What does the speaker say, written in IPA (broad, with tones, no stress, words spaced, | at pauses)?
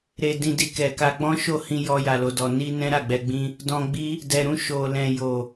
ɾe˧dĩ˧di˧ kɛ˨ka˧ ɡ͡bɔ̃˦ʃo˦˨hĩ˧ jɔ˧ja˨lo˨dɔ˨ ni˧ nɛ̃˦ɾa˦˨ɡ͡bɛ˧ɡ͡bĩ˦ | dɔ̃˧ɡ͡bi˦ | dɛ˨ɾũ˧ ʃo˨lɛ̃˨ jo˨